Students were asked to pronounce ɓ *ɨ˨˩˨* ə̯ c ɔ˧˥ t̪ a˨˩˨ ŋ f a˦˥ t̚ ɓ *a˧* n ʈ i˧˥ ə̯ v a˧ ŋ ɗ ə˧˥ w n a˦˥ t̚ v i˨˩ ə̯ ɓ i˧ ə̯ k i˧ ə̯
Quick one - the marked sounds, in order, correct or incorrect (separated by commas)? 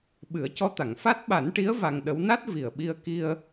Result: incorrect, incorrect